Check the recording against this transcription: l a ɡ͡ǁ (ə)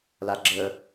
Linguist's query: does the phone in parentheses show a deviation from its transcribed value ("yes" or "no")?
no